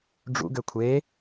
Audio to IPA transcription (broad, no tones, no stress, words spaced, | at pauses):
ɖ͡ʐṵɡø kʷʰe